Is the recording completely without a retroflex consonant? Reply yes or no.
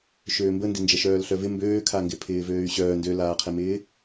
yes